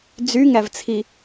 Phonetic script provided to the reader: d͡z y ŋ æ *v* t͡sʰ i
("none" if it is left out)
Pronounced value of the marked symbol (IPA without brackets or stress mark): v